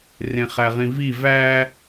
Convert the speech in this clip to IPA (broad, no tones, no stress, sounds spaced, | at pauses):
r ẽ χ æ ʁ ĩ v i v æ